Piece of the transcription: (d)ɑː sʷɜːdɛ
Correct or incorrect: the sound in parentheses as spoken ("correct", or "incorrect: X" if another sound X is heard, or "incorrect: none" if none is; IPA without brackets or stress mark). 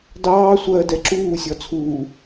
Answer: correct